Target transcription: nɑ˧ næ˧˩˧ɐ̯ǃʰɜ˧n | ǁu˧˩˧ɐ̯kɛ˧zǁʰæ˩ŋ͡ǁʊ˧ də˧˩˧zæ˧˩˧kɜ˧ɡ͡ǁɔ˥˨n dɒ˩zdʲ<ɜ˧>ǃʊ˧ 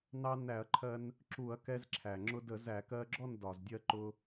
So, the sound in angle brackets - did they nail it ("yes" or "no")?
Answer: yes